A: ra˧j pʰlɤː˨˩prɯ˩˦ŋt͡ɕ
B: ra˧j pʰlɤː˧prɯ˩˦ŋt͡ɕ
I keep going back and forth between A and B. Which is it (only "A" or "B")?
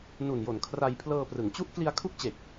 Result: B